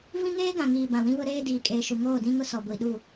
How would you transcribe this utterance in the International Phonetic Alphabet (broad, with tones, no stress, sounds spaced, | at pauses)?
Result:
v ĩ˦ ŋ eː˦ ɡ ã˨ ŋ iː˨ b ã˨ w ĩ˦ β ʊ˦ ɾ eː˦ d iː˨ kʼ eː˨ ʃ u˨ ŋ oː˦˨ d ĩ˦ ŋ ʊ˦ s ɔ˨ ɡʷ i˨ ɗ u˦˨